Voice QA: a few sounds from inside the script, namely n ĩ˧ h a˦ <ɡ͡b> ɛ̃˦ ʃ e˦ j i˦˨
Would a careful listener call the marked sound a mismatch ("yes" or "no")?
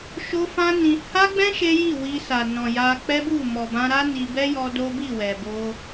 no